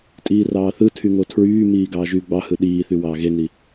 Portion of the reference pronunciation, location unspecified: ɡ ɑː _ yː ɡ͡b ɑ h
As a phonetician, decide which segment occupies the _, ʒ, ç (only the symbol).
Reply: ʒ